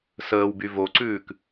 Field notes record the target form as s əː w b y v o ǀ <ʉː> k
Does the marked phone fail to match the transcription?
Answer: no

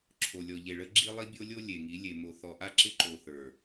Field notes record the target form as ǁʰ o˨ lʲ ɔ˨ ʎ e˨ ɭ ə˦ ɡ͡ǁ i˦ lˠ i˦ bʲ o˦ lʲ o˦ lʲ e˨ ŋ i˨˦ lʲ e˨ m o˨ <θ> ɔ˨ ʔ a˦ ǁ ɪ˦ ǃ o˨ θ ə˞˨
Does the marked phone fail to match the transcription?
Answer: no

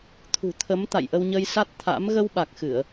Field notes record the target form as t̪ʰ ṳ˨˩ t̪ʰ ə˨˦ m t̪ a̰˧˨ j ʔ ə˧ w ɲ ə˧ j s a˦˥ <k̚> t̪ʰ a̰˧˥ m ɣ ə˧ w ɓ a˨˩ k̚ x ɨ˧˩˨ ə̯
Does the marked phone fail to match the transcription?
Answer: yes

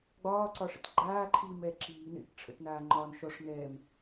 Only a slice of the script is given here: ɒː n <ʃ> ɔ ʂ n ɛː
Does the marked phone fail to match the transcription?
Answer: no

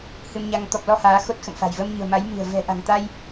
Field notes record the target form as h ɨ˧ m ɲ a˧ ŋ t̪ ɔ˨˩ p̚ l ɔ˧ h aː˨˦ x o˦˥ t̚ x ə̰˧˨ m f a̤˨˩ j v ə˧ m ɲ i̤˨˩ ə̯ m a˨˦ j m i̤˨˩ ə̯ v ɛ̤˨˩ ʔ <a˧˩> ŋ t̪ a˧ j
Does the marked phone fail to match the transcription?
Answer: yes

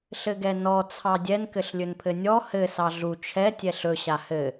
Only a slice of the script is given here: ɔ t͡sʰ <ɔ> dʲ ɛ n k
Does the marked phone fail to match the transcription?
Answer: yes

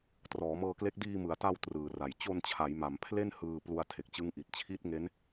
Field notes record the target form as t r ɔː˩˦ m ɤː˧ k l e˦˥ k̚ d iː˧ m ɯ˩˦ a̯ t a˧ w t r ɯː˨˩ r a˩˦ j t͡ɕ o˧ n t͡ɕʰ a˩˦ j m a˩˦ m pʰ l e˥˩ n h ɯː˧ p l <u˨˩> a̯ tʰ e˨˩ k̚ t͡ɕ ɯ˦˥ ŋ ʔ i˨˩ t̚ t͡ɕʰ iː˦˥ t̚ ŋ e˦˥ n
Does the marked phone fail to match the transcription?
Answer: yes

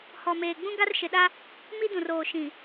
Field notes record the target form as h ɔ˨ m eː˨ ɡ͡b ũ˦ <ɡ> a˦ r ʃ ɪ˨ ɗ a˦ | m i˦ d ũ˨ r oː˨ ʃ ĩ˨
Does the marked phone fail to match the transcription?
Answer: no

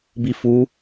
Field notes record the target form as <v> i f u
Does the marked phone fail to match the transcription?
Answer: yes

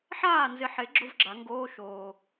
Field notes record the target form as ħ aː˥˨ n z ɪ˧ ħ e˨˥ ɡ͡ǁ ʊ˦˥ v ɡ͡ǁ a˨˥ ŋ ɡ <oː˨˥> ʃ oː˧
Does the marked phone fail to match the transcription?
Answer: yes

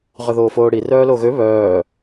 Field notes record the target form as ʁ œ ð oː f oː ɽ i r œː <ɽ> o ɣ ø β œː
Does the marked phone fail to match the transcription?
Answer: yes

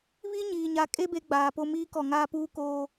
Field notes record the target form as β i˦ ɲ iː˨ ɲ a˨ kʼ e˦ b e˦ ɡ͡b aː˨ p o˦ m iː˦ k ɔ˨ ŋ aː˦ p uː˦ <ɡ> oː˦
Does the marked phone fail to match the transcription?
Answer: yes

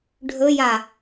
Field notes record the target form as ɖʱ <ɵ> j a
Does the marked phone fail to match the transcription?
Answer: no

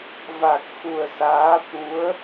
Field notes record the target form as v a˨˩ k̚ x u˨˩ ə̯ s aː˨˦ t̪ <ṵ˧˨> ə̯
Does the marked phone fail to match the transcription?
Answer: yes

